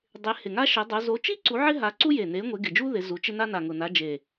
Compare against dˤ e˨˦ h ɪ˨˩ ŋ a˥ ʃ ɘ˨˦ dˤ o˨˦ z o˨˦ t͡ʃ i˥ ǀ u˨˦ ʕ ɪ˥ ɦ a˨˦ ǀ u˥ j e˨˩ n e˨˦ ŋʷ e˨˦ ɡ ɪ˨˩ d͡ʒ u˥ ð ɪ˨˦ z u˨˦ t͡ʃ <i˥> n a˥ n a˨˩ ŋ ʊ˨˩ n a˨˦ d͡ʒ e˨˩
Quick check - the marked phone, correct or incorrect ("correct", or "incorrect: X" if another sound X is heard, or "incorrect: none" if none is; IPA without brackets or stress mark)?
incorrect: ɪ˥